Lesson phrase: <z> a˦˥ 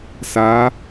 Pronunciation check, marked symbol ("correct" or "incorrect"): incorrect